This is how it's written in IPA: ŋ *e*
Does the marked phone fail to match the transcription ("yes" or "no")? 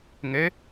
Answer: yes